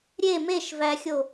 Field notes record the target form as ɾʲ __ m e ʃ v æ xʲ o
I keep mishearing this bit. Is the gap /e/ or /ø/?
e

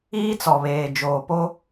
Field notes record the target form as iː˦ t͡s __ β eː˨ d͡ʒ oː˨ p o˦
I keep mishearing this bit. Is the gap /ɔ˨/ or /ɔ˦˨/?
ɔ˨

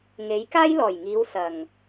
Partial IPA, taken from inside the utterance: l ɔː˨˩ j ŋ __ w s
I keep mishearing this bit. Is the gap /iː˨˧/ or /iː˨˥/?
iː˨˧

